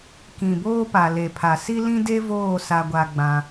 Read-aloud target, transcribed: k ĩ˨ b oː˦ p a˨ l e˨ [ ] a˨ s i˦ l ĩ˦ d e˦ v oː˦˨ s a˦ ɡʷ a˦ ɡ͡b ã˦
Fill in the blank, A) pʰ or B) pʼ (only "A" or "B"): A